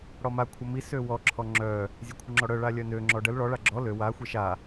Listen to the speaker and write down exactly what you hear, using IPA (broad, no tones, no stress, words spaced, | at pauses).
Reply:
ɽɔma kʷʰəmi søwɔ ǁʰɔŋ͡ǁœ | zʲekʷʰəŋ͡ǁɔɽœ ɭalʲœnø ŋ͡ǁɔɖəl ɭɔ ɭaɡ͡ǁɔ lø wa xʷeʃa